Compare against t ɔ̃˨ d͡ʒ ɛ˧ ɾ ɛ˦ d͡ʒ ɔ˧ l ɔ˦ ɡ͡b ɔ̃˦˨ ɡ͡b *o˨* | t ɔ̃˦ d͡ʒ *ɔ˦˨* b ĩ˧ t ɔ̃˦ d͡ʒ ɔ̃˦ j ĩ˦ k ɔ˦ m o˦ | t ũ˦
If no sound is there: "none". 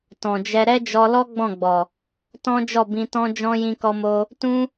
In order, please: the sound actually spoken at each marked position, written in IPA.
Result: ɔ˨, ɔ˦˨

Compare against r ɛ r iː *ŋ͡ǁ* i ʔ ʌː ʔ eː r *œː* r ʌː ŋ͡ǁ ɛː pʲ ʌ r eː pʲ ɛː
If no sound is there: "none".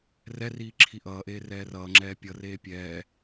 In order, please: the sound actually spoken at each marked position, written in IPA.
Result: ǁʰ, ɛː

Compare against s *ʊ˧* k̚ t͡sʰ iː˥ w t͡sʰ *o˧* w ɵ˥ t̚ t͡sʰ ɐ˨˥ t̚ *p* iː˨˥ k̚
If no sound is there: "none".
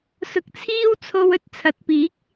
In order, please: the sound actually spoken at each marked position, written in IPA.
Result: ʊ˧, o˧, p

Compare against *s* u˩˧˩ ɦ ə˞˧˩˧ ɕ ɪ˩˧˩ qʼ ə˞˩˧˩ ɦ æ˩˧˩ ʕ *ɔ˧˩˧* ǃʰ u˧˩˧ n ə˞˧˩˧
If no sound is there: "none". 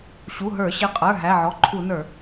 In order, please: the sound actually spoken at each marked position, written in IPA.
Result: ɕ, ɔ˩˧˩

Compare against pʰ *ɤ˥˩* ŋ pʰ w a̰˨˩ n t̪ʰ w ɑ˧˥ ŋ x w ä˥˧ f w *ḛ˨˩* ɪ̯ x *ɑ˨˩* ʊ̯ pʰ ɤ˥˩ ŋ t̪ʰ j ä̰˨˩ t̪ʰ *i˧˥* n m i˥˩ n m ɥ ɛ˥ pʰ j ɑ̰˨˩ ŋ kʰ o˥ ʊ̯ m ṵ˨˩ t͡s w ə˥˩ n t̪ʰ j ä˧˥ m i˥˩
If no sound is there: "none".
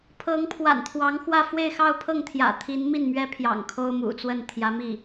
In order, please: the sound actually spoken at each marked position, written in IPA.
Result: ɤ˧˥, e˥˧, ɑ˥˧, i˧˥

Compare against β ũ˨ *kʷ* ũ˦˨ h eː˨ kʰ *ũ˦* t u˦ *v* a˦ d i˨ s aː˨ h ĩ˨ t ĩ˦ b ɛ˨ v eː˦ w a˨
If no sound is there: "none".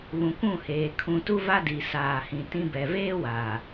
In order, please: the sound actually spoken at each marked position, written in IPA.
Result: kʷ, ũ˨, v

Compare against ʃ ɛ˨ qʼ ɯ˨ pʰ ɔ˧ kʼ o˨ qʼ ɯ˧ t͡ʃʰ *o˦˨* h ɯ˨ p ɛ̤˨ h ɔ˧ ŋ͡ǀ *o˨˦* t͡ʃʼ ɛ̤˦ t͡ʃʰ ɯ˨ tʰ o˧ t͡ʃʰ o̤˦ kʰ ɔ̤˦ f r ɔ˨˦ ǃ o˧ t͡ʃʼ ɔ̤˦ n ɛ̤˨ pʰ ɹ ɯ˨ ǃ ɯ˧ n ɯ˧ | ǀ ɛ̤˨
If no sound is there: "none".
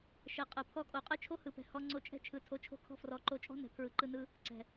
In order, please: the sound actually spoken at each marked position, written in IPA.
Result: o˦, o˧

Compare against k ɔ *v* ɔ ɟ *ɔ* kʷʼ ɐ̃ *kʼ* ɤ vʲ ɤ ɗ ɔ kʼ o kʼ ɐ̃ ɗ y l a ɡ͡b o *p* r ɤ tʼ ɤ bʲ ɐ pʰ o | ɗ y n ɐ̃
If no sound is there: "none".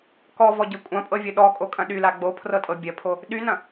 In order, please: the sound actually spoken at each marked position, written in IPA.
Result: v, ɤ, pʼ, pʰ

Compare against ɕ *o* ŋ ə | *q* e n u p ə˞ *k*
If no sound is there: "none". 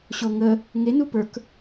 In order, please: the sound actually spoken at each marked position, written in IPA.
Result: o, ŋ, k

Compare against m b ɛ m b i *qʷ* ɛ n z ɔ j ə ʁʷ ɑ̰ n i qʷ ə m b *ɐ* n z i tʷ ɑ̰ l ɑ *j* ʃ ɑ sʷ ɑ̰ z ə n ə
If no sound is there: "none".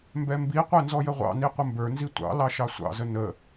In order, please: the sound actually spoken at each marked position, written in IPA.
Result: qʷ, ə˞, none

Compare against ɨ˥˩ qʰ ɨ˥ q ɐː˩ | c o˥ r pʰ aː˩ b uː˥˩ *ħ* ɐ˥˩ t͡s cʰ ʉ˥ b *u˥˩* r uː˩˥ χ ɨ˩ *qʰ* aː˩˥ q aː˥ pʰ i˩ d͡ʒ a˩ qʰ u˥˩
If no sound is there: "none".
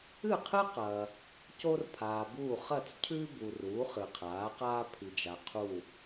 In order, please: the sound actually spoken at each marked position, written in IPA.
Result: χ, u˩, qʰ

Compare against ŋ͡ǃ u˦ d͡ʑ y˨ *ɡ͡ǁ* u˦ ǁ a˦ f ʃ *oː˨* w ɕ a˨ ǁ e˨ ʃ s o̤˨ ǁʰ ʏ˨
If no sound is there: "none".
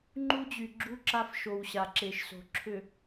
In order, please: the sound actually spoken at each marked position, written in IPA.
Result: ɡ͡ǁ, o˨

